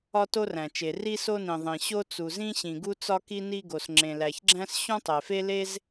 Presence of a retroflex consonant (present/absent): absent